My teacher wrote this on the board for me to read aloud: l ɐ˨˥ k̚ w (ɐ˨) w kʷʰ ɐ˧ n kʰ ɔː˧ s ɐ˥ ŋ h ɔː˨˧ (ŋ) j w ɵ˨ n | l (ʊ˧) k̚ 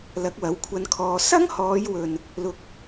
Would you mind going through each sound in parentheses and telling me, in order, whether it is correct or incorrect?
incorrect: ɐ˨˥, incorrect: none, correct

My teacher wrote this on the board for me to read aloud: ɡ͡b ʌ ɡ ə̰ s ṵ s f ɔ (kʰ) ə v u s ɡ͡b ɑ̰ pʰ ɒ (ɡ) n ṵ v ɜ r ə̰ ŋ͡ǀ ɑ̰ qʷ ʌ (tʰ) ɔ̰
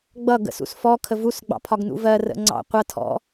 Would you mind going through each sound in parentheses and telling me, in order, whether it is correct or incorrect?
correct, correct, correct

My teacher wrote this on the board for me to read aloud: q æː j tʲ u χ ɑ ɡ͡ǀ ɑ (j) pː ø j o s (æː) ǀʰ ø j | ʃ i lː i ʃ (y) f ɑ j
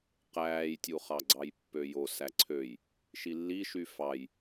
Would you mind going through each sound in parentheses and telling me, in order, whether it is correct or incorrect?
correct, incorrect: æ, correct

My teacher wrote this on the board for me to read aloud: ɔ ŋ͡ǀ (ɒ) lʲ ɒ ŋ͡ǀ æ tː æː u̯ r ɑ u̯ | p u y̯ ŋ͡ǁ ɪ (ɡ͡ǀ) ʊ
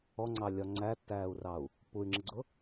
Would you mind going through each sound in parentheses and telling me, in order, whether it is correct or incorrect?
incorrect: ɑ, correct

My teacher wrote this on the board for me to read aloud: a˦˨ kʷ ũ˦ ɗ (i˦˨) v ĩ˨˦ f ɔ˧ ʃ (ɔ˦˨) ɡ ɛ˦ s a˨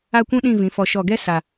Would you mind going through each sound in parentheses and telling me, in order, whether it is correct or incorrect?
incorrect: ĩ˦˨, correct

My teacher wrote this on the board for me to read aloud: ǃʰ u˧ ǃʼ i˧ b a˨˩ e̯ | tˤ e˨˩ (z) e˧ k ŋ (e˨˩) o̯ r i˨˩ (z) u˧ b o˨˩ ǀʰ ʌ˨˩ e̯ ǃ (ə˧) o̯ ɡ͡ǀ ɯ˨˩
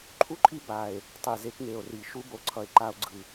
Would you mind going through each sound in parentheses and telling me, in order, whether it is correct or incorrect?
correct, correct, incorrect: ʃ, incorrect: a˧

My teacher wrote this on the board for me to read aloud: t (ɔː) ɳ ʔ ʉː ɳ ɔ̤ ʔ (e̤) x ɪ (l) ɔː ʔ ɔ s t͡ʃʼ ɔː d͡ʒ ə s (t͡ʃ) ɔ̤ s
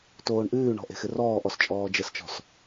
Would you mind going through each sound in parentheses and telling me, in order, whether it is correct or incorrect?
incorrect: oː, correct, incorrect: r, correct

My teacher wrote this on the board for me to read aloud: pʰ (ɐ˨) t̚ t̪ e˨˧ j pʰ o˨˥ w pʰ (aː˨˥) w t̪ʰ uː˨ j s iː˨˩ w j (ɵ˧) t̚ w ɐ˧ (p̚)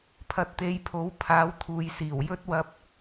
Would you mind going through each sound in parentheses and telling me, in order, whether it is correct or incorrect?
correct, correct, incorrect: ɵ˥, correct

